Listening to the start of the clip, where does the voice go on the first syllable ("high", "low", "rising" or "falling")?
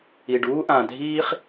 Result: low